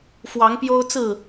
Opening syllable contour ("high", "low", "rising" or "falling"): rising